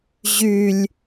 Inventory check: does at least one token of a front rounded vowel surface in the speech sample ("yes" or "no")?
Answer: yes